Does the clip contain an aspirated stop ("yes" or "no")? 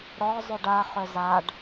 no